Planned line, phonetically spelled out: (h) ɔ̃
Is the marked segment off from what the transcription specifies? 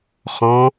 yes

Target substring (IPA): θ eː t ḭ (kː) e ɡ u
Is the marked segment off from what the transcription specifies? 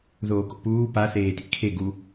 yes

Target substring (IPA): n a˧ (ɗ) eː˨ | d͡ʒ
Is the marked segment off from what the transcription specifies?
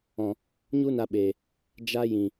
yes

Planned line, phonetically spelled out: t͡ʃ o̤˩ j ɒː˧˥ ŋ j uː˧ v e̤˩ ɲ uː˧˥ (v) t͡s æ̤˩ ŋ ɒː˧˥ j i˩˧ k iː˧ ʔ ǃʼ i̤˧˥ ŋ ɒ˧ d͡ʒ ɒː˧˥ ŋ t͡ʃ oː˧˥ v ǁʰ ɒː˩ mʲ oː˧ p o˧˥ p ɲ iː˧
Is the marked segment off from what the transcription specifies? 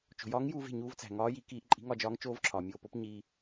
no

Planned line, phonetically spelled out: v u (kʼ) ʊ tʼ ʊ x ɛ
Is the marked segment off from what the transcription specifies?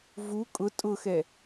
no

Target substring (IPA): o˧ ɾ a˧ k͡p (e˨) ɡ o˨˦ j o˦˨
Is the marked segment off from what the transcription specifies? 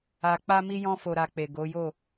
no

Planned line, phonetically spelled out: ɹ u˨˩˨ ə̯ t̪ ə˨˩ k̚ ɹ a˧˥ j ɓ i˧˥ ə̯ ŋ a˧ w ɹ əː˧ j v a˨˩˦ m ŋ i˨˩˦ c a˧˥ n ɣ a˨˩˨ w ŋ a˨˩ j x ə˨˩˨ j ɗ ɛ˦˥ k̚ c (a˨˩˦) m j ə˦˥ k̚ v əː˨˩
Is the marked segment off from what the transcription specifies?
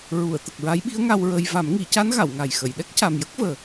yes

